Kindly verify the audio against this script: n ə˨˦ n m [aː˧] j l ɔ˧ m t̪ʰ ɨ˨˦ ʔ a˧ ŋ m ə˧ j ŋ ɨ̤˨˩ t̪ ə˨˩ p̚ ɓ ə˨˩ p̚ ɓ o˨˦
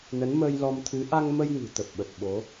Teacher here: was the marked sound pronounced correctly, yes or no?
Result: no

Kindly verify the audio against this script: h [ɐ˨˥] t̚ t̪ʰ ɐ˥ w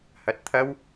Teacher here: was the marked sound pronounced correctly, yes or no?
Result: no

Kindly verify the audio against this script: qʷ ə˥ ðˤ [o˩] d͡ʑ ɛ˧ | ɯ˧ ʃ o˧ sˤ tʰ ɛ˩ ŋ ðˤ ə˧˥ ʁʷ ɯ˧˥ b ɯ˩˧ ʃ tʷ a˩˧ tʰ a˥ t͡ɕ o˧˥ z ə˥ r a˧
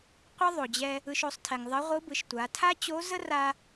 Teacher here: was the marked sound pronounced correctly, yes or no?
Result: yes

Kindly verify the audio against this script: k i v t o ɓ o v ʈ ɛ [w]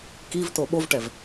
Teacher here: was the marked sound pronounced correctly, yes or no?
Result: no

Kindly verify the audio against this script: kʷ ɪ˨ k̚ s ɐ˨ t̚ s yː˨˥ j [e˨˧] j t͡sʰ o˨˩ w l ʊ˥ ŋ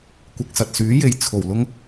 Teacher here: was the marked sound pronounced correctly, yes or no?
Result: no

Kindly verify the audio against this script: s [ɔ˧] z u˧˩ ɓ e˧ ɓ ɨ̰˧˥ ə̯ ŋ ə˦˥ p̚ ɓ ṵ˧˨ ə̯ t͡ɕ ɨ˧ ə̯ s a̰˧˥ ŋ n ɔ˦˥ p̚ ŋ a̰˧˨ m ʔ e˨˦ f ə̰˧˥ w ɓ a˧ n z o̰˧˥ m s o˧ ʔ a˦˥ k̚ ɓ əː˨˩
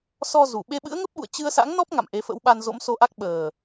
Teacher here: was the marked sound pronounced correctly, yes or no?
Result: yes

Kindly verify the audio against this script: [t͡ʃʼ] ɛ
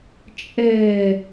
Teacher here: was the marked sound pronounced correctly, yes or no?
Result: yes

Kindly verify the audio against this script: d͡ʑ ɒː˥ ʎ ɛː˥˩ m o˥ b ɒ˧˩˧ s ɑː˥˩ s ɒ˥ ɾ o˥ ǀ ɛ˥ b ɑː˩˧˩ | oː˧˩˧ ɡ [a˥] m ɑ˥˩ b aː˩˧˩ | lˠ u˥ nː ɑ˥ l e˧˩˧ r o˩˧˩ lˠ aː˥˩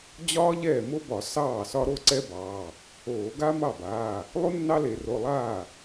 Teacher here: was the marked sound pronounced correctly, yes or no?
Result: yes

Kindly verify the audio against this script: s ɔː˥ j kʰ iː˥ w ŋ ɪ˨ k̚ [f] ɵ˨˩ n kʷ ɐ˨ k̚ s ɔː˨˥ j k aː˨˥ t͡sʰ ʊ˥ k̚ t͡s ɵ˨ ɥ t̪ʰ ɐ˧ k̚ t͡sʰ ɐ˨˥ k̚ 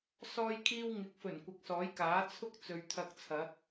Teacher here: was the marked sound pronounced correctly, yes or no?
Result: yes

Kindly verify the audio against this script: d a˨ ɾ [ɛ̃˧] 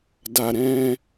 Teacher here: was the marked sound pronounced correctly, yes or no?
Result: yes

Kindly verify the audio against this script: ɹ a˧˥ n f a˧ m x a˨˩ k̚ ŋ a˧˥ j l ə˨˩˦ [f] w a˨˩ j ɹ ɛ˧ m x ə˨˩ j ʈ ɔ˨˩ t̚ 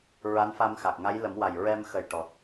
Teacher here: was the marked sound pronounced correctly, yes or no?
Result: no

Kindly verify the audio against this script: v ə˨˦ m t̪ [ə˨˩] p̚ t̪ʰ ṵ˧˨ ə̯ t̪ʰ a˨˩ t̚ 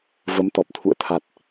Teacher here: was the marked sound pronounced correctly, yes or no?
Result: no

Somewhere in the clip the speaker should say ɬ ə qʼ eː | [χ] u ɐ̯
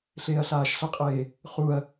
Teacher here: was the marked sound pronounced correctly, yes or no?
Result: yes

